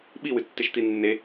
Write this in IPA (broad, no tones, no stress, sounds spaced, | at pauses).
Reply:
ɓ i w ɨ tː e ʃ t̪ i nː e